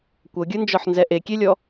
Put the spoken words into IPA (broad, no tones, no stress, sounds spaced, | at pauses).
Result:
kʷ ɤ ɡʲ ɯ n d͡ʒ ɔ ħ n z ɛ ʔ e kʲ e lʲ ɔ